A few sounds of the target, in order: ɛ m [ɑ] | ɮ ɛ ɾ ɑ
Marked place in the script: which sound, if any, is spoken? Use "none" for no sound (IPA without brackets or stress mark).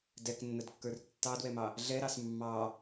ɑ